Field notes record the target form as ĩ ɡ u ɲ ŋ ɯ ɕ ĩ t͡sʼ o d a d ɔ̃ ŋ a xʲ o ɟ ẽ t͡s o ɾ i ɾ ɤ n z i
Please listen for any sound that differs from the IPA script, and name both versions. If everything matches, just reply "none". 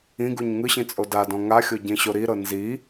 t͡s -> ɕ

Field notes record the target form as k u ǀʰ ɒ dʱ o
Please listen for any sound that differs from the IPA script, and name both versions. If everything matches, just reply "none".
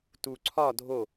k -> t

